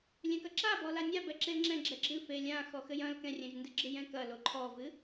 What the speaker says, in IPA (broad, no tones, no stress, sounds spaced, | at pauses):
lʲ ɛ̃ k ɐ ǁ a b ɔ l a nʲ a b ɛ ǁ e l ŋ͡ǁ ɛ̃ ɡ͡ǁ ɛ ɡ͡ǁ ɨ f e lʲ ã x ɔ x ɘ j ɐ̃ l k ɛ̃ rʲ ɛ̃ ʒ n d ɨ ɡ͡ǁ ɨ j ɛ̃ k ɐ l o ǃʰ ɔ v ɨ